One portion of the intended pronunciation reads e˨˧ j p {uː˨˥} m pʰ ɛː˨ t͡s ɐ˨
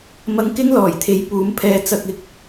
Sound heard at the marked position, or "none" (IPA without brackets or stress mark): uː˨˥